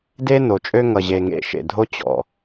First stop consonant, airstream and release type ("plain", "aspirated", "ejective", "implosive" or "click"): plain